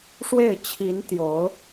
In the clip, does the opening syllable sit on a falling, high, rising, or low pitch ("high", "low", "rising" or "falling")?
falling